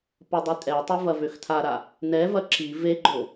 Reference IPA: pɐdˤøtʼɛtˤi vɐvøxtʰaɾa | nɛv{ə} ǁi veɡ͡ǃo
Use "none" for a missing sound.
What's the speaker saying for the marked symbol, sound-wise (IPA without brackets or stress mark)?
ɐ